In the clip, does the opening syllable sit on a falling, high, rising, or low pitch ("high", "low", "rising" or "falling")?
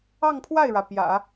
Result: falling